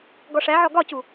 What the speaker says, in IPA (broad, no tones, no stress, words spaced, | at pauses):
ɡɔʂæʕɔ ɡɒcu